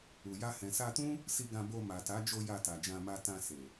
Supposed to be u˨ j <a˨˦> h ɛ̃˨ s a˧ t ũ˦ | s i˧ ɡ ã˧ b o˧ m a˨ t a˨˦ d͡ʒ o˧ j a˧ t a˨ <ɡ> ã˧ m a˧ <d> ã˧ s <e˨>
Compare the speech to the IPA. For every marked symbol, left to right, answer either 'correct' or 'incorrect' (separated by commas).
incorrect, incorrect, incorrect, correct